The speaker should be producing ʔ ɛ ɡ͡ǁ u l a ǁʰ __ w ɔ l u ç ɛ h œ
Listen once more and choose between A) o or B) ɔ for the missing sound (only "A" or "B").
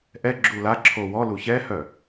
A